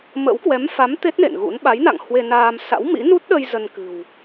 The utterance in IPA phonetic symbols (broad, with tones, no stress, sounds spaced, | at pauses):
m ə̰˧˥ w k w ɛ˨˦ m f a˨˦ m t̪ e˦˥ t̚ n ḛ˧˨ n ɣ ṵ˧˥ n ɓ a˨˦ j n a̰˧˨ ŋ h w e˧ n aː˧ m s a̰˧˥ w m ḭ˧˥ n u˦˥ t̚ ɗ ə˧ j z ə˧ n k ɨ̤˨˩ w